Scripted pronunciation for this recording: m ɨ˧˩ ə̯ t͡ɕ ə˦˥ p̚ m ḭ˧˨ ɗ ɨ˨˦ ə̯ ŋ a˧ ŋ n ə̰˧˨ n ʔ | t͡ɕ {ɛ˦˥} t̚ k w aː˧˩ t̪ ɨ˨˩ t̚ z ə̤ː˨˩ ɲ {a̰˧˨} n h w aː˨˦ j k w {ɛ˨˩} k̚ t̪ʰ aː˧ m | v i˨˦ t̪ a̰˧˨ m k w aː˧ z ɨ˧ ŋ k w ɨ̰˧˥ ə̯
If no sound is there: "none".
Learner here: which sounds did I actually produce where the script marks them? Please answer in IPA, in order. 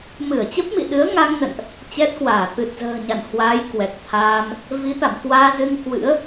ɛ˦˥, a̰˧˨, ɛ˨˩

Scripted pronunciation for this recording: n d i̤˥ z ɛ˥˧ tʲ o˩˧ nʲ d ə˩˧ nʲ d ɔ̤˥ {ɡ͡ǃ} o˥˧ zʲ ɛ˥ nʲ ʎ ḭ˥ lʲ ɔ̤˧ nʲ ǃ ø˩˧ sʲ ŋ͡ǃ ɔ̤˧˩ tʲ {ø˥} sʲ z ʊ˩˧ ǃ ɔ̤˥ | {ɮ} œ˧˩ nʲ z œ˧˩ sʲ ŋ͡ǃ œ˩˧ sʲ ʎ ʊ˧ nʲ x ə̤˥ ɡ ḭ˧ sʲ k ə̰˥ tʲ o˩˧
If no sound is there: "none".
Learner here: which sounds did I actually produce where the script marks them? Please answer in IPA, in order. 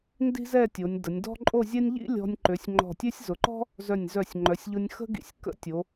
ǃʼ, ø˥, z

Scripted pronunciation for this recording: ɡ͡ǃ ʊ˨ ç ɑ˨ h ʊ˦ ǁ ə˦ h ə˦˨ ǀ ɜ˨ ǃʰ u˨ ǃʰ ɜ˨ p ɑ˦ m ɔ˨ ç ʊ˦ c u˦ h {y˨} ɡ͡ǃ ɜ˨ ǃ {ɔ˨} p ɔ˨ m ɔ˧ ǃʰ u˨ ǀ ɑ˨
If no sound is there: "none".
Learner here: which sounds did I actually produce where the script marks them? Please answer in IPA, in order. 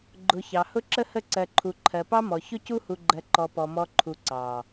u˨, ɔ˨

